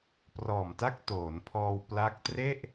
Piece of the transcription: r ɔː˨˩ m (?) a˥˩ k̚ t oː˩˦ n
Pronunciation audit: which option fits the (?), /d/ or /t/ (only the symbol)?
t